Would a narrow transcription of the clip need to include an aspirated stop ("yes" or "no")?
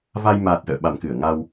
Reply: no